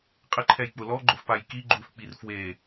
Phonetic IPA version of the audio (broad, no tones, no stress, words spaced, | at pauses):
qʼɪǃʰɛjk͡pʊ lɔɡ͡ǃʊfpaj kiɡ͡ǃufk͡pir fwe